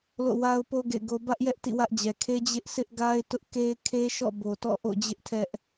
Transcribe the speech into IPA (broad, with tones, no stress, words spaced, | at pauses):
lo̰˦˨wa˦ʊ̯po˦ ɡḛ˦˨ɪ̯ɡo˦ bä˦ʔjɛ˦ʔ tḭ˦˨wä˦ʔd͡ʑɛ˨ kʰe˦d͡ʑɪ˦ʔsʰɪ˦ʔ ɡa˦ɪ̯tʊ˦ʔ ke˦ɪ̯kʰe˦ʃɔ̰˦˨ bo˨tɔ̰˦˨ʔo̰˦˨ d͡ʑɪ˦ʔtʰɛ˦ʔ